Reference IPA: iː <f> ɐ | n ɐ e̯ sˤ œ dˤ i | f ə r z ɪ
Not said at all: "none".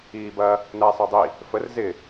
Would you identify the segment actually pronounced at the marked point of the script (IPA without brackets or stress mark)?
b